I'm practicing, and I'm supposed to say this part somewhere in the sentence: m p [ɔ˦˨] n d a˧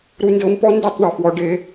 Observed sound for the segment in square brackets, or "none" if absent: ɔ˦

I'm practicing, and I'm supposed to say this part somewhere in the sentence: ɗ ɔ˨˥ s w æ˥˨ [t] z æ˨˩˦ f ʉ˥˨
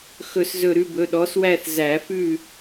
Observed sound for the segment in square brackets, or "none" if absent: θ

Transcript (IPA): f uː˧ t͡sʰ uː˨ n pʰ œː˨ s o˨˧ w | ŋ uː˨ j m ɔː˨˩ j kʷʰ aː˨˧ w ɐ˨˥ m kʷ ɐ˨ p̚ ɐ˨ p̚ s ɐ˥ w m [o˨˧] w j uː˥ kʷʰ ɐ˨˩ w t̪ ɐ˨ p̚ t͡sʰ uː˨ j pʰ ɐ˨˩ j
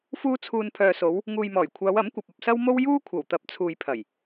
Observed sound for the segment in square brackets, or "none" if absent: o˥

